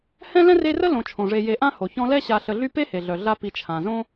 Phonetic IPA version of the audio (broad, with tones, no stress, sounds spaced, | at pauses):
h ɛ̃˥ l ɛ̃˥ r e˦ r ə˥ l õ˨ t͡ʃʰ õ˩ ʐ e˨ j e˨ ʔ ã˦ h o˩ ç ɔ̃˦ l ɛ˥ ɕ a˨ ɬ ə˨ ɮ y˦ p e˥ h e˩ ɮ œ˩ ɮ a˦ p i˨ t͡ʃʰ ã˩ z õ˥